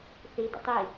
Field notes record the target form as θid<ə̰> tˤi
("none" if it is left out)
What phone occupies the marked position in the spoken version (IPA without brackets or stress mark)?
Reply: ə̰